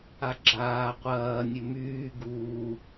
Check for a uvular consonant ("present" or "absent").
present